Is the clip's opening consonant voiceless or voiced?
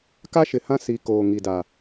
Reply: voiceless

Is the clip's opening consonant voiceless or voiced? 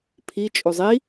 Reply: voiceless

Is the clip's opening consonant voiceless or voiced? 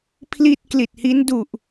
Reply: voiceless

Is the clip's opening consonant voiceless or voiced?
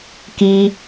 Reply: voiceless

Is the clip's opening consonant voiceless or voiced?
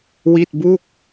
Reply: voiced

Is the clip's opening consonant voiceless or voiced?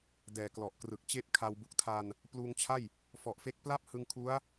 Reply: voiced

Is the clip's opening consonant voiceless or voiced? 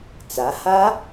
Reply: voiceless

